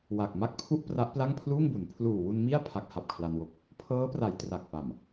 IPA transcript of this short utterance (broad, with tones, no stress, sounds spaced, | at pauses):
w a˨˩ k̚ m a˥˩ k̚ pʰ u˥˩ ʔ p r a˦˥ ʔ p l a˥˩ ŋ pʰ l uː˥˩ ŋ b u˩˦ n pʰ l uː˨˩ w u˧ n m i˥˩ a̯ pʰ a˦˥ k̚ h a˨˩ p̚ kʰ l a˧ n w o˦˥ k̚ | pʰ ɤː˦˥ p r a˩˦ j t r a˨˩ k̚ p a˨˩ m